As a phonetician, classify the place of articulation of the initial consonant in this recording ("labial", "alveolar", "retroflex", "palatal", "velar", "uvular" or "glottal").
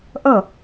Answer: glottal